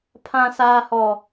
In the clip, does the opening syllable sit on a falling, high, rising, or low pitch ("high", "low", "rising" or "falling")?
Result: high